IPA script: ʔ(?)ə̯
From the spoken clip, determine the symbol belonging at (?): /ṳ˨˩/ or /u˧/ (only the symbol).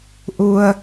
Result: u˧